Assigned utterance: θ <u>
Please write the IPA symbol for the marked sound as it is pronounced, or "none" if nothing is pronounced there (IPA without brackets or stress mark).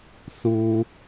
u